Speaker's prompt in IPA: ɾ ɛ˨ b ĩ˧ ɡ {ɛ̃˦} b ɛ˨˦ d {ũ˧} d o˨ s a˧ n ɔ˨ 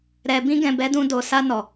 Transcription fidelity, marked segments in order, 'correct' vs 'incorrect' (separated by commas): incorrect, correct